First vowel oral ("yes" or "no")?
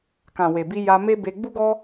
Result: no